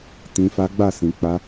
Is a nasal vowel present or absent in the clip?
present